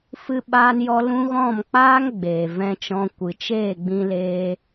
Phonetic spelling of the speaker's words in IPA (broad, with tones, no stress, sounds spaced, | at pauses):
f ɨ˧ ɓ aː˧ n j ɔ˧ l ũ˦ ɣ ɔ̃˦˨ m k͡p aː˦ ŋ ɡ͡b eː˨ v ɛ̃˧ t͡ʃ ɔ̃˧ kʷ ɨ˨ t͡ʃ eː˦˨ ɡ͡b ĩ˧ l eː˧